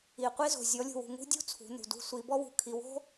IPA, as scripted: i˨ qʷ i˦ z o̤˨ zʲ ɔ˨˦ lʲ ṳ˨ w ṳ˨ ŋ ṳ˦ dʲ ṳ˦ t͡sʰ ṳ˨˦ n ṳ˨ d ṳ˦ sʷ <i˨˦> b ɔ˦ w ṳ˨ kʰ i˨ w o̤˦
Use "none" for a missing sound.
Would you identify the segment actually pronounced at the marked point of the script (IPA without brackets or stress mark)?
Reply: i˨˦